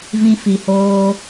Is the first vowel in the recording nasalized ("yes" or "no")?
yes